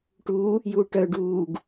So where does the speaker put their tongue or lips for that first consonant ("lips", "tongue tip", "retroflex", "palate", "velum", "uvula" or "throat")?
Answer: retroflex